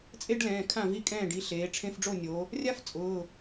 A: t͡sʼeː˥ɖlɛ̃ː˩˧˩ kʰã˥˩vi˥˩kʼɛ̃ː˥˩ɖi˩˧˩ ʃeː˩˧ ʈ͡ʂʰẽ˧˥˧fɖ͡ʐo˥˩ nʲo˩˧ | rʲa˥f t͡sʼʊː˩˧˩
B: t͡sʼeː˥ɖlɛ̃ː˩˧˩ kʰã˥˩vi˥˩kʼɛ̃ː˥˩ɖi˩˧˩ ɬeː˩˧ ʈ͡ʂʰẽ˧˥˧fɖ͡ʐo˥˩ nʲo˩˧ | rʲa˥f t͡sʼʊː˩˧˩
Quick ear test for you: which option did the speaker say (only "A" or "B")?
B